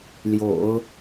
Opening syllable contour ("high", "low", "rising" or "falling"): low